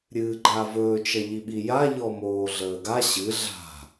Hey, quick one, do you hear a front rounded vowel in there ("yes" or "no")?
no